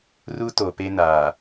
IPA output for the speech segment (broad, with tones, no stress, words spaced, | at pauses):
ru˦ to˨pe˦naː˨